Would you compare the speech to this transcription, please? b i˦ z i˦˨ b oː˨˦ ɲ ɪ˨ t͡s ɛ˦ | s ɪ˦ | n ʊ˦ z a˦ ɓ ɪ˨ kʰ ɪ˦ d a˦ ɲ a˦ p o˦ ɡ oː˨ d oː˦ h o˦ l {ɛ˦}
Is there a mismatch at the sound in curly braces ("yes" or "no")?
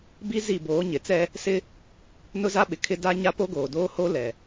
yes